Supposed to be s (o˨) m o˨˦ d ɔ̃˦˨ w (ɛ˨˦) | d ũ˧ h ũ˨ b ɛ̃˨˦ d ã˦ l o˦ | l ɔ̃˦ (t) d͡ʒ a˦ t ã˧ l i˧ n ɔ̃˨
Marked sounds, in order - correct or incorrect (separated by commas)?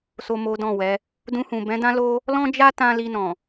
correct, correct, incorrect